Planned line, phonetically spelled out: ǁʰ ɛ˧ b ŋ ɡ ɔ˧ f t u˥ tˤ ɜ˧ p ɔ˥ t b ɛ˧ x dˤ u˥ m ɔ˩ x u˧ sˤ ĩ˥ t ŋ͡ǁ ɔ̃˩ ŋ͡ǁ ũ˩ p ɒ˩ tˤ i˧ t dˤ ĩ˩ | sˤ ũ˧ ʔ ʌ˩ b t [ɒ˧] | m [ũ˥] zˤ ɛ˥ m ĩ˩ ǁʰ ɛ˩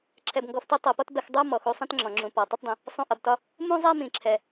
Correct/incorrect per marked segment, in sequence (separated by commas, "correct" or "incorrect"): correct, correct